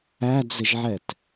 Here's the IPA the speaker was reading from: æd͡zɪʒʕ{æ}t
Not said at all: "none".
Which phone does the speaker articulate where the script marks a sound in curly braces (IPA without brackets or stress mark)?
ɛ